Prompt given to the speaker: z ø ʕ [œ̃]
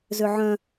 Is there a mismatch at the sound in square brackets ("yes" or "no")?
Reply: no